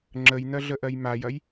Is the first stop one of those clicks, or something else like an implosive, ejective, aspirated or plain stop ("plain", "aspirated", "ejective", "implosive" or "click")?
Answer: click